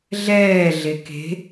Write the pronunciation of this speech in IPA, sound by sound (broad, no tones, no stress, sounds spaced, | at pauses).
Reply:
ɮ ɛː ɮ e k e̤